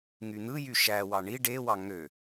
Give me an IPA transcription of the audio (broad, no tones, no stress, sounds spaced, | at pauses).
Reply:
ŋ y n̪ ɯ j y ʃ æ w ɑ ɳ i ɖ e w ɑ ŋ ø